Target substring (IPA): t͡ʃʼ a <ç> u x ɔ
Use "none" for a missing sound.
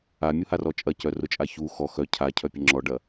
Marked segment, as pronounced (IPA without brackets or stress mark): ç